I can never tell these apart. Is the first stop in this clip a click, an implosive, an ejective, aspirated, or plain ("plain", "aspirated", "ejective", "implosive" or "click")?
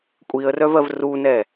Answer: ejective